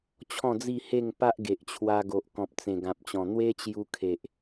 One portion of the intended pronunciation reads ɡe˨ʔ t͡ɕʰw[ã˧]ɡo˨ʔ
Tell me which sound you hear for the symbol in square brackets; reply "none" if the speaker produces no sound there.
a˧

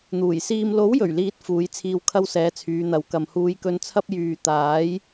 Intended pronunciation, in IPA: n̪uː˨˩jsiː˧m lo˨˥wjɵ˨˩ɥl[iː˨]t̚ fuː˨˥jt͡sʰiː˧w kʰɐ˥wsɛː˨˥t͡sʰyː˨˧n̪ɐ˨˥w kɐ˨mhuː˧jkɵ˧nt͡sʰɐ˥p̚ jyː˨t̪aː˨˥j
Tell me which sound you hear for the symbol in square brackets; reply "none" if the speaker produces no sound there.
iː˨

